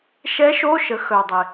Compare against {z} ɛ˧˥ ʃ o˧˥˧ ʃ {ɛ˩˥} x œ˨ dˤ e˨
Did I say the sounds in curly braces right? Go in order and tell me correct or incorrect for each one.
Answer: incorrect: ʃ, incorrect: ə˩˥

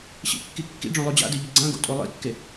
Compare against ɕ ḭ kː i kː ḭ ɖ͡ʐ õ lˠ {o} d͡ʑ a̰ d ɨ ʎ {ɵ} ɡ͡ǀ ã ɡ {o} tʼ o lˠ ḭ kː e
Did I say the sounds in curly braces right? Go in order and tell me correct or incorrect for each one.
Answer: correct, correct, incorrect: o̰

